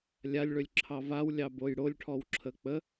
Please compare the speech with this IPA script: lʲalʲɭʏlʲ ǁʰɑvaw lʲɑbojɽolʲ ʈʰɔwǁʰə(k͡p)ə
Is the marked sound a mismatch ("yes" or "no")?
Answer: no